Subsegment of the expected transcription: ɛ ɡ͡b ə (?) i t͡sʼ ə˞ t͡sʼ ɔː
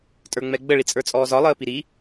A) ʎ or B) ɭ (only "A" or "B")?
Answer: B